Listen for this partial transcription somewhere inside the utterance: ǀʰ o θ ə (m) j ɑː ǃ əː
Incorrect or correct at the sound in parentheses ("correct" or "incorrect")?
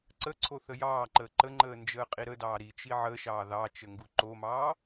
incorrect